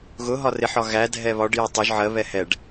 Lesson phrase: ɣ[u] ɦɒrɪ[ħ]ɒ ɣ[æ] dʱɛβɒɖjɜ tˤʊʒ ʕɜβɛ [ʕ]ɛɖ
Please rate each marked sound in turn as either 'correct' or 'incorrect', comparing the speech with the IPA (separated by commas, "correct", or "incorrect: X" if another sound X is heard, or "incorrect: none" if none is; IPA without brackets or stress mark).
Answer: incorrect: ʊ, correct, correct, incorrect: h